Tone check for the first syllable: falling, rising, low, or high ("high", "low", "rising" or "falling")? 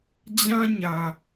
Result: high